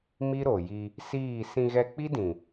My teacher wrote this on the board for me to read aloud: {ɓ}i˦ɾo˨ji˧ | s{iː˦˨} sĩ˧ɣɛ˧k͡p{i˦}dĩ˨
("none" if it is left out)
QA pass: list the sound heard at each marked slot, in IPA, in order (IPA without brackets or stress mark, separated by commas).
m, iː˦˨, i˦